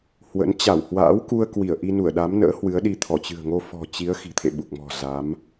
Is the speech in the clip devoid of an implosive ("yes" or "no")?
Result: no